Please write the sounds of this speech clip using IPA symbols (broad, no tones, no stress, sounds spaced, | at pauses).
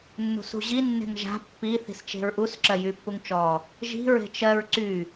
nː ṳ s ṳ ʑ i nː e̤ ŋ ʒ a̤ pː i θ i̤ s t͡ʃ e̤ ɹ ʔ u s ǁ ɜ j y pː u ŋ t͡ʃ ɔ | ʒ i̤ ɹ e̤ t͡ʃ ɜ ɹ ǀ y